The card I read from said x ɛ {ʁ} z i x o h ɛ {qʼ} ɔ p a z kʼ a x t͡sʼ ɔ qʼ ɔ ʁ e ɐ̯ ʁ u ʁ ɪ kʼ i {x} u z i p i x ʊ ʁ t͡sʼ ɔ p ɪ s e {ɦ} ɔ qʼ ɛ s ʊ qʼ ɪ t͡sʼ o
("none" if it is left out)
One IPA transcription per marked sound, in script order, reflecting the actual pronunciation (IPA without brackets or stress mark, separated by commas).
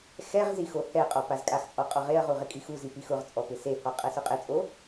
ʁ, qʼ, x, h